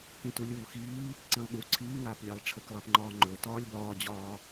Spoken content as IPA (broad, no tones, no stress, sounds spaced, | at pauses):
k ĩ t u lʲ uː x iː | ǀ ĩ lˠ ɠ u ǀʰ iː ŋ aː p lʲ a lˠ ʈ͡ʂʰ ə k lˠ a p ŋ͡ǃ ɒː ŋ͡ǃ ɵ t ɒː lʲ b ɒː d͡ʑ ɒː